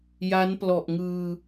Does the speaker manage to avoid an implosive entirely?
yes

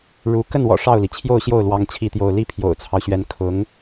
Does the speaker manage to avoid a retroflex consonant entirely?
no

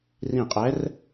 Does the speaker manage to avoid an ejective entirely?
no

